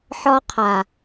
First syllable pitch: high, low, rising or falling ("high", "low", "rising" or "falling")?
high